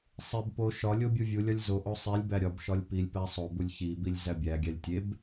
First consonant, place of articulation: alveolar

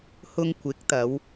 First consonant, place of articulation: glottal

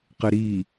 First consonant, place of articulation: uvular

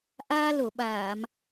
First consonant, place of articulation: glottal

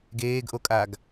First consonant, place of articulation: velar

